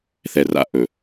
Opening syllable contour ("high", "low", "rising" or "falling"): low